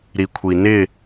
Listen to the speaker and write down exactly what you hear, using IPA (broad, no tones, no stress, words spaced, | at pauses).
ɾikʷʰinɪ